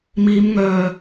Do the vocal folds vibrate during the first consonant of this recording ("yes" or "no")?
yes